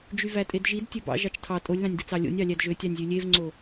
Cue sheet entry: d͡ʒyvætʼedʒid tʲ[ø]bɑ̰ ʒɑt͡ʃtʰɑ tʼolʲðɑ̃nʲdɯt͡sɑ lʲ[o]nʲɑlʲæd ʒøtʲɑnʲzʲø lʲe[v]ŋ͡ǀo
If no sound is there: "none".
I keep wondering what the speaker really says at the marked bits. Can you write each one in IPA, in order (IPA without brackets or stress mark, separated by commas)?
ø, o̰, v